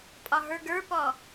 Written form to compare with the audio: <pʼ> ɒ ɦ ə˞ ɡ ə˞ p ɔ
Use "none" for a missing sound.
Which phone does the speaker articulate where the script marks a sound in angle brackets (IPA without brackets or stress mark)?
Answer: pʼ